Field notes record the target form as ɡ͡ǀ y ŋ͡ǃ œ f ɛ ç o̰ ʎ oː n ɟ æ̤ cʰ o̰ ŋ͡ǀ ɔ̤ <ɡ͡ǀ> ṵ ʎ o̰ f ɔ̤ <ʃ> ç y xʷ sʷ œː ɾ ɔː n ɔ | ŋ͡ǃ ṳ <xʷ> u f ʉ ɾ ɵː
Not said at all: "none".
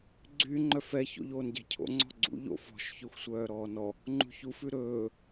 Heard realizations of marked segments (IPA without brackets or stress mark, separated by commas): ɡ͡ǀ, ʃ, ç